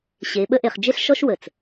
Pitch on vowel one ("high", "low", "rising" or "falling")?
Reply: rising